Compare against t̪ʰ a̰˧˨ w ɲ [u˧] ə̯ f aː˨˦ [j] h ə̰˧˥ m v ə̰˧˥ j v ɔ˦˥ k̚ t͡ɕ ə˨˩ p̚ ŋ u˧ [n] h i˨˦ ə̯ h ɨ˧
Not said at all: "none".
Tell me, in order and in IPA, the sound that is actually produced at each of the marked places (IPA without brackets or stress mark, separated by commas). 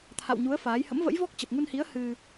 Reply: u˨˦, j, n